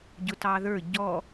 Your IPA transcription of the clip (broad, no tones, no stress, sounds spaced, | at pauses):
ɟ ʊ t ɑ ð ə˞ ɟ ɔ